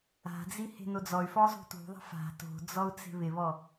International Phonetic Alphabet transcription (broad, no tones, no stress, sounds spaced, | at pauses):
a̤ d͡z i h e̤ n o d͡z ɔ y̯ f ɔ zˤ ṳ t ṳ ðˤ a̤ f a̤ t o̤ d͡z ɔ u̯ t͡s e̤ β ɪ β ɔ